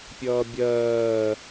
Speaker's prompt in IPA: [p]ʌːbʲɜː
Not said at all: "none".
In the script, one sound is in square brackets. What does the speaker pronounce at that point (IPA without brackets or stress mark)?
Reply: pʲ